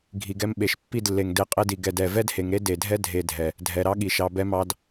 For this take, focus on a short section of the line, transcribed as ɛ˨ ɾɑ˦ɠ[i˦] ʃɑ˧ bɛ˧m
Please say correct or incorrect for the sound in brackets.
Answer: incorrect: i˨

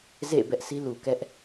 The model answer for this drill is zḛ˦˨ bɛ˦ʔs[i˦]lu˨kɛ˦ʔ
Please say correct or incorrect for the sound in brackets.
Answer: correct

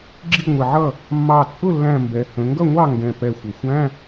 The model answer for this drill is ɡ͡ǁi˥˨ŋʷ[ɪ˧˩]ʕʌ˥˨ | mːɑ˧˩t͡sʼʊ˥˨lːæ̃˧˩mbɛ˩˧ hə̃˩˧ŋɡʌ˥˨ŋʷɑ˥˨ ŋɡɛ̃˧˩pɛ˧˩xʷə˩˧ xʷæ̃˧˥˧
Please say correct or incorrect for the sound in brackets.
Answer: correct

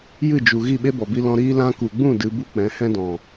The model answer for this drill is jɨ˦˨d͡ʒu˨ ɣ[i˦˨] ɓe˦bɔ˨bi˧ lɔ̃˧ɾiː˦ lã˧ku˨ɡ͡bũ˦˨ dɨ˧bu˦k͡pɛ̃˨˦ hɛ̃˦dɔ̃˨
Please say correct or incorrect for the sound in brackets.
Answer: correct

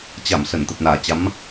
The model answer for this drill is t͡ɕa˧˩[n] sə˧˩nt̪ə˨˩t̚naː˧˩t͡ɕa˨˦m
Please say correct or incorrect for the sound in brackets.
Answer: incorrect: m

